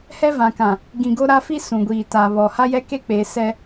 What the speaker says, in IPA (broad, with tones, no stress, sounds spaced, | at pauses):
h ɛ˦ v ã˨ k ã˨ | ɡ ĩ˨ ɡ o˦ ɾ a˦ f i˦ s ũ˨ ɡʷ iː˨ t a˨ β ɔ˨ h a˦ j ɛ˦ k e˦ k͡p e˨˦ s ɛ˦